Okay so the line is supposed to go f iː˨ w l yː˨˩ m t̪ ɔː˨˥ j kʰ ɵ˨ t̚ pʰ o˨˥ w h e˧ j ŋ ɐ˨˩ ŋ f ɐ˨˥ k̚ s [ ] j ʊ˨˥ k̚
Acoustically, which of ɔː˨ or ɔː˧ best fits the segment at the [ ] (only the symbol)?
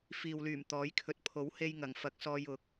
ɔː˧